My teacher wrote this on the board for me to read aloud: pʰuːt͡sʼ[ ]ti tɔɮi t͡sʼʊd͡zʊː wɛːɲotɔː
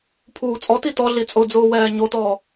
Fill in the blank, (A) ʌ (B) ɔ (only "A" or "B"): B